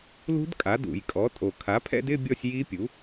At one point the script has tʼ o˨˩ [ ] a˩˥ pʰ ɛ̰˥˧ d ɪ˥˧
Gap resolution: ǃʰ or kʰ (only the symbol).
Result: kʰ